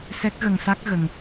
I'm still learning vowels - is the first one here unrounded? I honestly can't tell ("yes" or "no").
yes